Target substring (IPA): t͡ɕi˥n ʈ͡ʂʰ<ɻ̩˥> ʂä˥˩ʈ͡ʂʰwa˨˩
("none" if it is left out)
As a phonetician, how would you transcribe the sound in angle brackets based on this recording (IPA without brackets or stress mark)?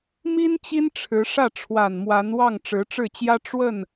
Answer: ɻ̩˧˥